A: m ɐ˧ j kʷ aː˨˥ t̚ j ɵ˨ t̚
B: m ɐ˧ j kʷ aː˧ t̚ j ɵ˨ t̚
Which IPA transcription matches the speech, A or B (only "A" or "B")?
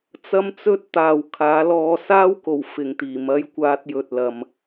B